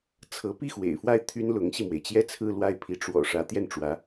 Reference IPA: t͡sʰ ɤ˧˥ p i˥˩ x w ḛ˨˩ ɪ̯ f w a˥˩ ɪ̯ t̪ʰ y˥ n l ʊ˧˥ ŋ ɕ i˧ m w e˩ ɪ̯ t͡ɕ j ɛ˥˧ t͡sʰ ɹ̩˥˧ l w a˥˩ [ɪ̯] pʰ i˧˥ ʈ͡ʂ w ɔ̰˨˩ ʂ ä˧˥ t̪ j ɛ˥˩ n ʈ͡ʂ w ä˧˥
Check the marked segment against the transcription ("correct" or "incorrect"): correct